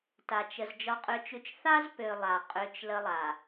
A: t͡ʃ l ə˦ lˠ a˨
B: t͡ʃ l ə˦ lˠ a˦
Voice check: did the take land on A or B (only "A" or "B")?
A